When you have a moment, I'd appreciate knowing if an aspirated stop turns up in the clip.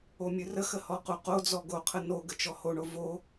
yes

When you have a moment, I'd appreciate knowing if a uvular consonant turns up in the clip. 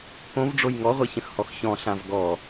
yes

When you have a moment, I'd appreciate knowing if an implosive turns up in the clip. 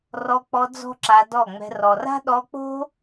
yes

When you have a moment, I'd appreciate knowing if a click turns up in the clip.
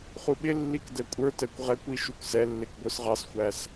no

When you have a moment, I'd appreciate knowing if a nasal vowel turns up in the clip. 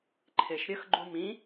yes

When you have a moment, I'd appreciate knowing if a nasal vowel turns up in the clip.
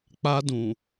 yes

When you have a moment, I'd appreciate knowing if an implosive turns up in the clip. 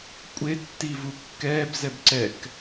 no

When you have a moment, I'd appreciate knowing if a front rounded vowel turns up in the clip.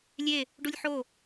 no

